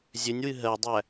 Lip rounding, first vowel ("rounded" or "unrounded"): rounded